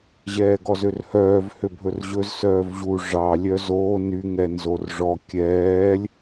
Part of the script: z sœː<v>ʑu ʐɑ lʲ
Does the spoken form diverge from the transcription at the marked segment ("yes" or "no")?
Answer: no